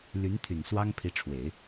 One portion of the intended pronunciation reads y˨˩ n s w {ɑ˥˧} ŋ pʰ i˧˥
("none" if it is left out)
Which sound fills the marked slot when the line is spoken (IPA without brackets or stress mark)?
ɑ˥